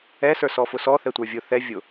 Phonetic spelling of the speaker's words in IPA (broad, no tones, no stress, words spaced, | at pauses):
ɛ sə˞sɔfʊsɔ θɛtʷə˞vʲʊ θɛ vʲʊ